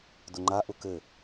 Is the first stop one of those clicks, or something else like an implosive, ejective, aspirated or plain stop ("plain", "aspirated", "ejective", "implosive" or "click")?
plain